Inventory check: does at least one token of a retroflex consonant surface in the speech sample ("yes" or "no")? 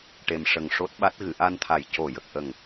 yes